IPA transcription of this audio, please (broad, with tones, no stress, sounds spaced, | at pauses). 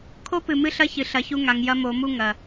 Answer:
kʰ o˦ p ɨ˨ m ɨ˦ ɬ ɐ˦ ç ɨ˨ ɬ ɐ˨˦ ç u˦ ŋ a˨ ŋ j ɐ˦ m o˨˦ m u˦ ŋ ɐ˨